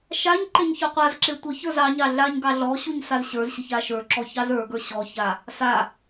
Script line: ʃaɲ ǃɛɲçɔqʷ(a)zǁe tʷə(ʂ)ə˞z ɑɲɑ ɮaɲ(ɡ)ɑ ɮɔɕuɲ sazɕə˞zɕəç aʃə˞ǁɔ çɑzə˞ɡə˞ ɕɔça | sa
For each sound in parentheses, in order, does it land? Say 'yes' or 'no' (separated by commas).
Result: yes, no, yes